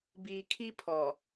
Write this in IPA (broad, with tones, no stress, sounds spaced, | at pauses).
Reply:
b iː˨ kʰ i˦ pʰ ɔ˨